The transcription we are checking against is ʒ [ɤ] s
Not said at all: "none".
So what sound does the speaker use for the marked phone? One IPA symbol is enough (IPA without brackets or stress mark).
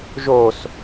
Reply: o